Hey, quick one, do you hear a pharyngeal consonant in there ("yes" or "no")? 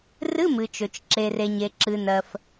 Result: no